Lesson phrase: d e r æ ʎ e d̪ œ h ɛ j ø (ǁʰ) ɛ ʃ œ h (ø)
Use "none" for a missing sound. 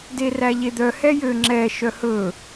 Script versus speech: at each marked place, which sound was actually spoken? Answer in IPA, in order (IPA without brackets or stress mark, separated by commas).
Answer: ŋ͡ǁ, ɵ